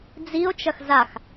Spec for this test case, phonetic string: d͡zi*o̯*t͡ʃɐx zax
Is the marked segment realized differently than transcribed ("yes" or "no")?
no